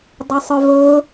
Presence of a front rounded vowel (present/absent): present